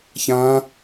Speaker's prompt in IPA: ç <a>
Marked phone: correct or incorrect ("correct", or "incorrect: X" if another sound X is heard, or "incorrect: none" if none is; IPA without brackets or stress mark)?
incorrect: ã